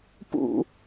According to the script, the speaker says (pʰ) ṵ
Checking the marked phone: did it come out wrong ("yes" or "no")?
yes